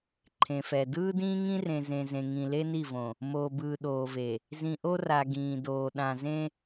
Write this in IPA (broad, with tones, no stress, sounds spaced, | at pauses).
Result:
ǃʰ ẽ˨ f ɛ˨ d ɯː˦ d ĩː˦ ŋ ĩ˦ r ẽ˨ z ẽ˨ z ẽ˨ ŋ ĩ˨ l e˦ n i˦˨ v õ˨ | m oː˨ b ɯː˨ ɗ oː˨ v e˨ | z ĩ˨ ʔ o˦ r a˨ ɡ ĩː˨ d oː˨ ɗ ã˨ z ẽ˦